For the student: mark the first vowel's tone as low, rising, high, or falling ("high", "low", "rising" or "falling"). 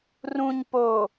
low